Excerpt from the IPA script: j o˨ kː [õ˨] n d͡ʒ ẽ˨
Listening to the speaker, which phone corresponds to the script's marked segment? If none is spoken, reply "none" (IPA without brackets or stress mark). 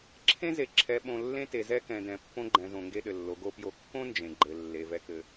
õ˦